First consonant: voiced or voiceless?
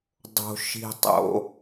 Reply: voiced